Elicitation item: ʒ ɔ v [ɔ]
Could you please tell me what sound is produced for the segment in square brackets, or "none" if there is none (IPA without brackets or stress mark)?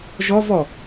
ɔ